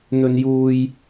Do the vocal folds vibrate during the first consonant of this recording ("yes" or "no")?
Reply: yes